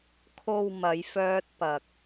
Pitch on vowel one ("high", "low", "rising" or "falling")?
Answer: low